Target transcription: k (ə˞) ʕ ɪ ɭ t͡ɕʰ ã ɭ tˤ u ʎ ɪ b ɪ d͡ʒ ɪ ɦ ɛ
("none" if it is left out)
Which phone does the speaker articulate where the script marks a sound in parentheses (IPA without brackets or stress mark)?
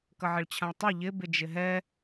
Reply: ʌ